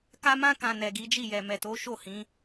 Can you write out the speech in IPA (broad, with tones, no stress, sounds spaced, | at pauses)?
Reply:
k a˧ m ã˧ k ã˨ n ɛ˨ ɡ i˨˦ d͡ʒ i˦˨ j ɛ˨ m ɛ˨ t o˨˦ ʃ o˦˨ h ĩ˨˦